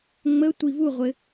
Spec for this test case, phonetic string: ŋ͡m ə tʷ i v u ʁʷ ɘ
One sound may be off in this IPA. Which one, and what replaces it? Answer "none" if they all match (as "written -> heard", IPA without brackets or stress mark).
none